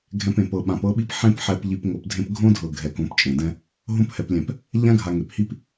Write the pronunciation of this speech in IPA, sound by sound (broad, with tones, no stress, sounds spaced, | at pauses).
ɡʱ ɛ̃˧ p ẽ˨ p ɤ˨ ɓ ã˨ p ɤ˦ ɓ i˦ p ħ ẽ˦ p ħ ɛ˧ p ʎ i˧ p ŋ o˧ p dʱ ẽ˦ p ɡʱ õ˦ dʱ ɤ˨ ɡʱ ɛ˨ k õ˨˦ p t͡ʃʼ ẽ˨ d ɛ̃˦ | ɦ õ˦ p h ɛ˨ p lʲ ɛ̃˨ p | ʎ ã˦ ɡʱ a˨ ŋ e˨ p h i˦ p